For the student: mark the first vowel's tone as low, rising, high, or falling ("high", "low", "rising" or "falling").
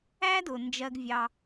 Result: high